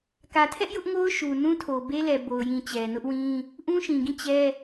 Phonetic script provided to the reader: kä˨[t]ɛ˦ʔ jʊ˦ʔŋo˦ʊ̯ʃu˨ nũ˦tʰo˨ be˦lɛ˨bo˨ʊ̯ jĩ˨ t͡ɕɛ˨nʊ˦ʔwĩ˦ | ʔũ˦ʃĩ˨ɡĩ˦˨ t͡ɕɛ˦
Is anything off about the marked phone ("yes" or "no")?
yes